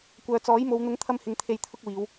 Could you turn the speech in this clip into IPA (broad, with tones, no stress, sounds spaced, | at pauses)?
kʷ œː˨ t͡s ɔː˨˥ j m o˨˧ w n̪ ʊ˨˥ ŋ t̪ʰ ɐ˧ m h ɪ˨ ŋ t̪ʰ e˨ j t̪ʰ ʊ˧ k̚ w iː˨˧ w